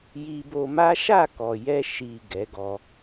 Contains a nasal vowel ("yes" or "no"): no